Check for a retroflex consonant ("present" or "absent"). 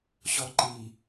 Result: absent